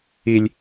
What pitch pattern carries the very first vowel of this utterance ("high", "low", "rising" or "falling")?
high